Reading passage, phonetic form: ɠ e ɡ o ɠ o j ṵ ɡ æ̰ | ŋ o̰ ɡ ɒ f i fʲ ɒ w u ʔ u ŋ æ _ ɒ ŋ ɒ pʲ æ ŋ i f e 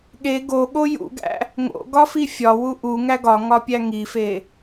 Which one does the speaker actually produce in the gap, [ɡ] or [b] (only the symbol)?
ɡ